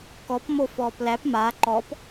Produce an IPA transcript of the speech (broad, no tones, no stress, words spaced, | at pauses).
kɔpmo fɔːplæp ma ǃɔp